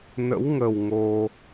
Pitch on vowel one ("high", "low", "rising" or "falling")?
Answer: rising